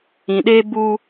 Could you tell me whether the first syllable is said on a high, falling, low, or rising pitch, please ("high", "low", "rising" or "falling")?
low